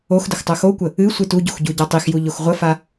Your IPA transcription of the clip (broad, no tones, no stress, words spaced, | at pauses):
oxdəx tˤoxokʷə | ɨ sʷɨtuɟox ɟuɟatˤixju ʎoxʁʷəfa